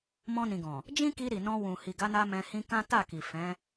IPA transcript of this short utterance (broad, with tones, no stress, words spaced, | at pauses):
mɔ̃˧nĩ˨ɡɔ̃˨ | d͡ʒĩ˦ki˧ ɾi˨nɔ̃˧wũ˨ hi˨ɡa˨˦na˧ mɛ̃˧hĩ˦ kã˦ ta˦˨ki˨ fɛ̃˨˦